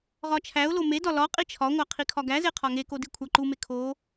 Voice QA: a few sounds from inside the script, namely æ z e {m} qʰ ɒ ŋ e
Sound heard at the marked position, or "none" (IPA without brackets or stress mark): none